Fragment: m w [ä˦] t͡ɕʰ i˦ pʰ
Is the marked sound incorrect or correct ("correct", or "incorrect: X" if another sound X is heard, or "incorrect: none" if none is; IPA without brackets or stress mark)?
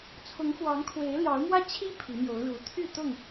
correct